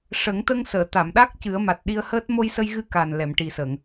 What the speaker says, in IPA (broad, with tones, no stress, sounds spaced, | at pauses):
ʂ ə˨˩˦ ŋ t̪ ə˧ ŋ s əː˨˩˨ t̪ a˨˩˨ m ɗ a˦˥ k̚ c ɨ˨˩˦ ə̯ m a˨˩ t̚ ɗ i˧ ə̯ h əː˦˥ t̚ m o˧ j s ə˧ j ɣ ɨ˧ k a˨˩ n l ɛ˨˩˨ m ʈ i˨˩ s ə˨˩˨ ŋ